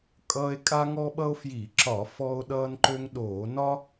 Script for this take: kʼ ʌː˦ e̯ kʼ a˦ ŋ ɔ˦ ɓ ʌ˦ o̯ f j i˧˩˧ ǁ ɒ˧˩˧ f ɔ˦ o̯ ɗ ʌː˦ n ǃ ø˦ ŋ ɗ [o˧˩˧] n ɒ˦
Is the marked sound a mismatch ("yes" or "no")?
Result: yes